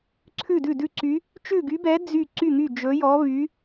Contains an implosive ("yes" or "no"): no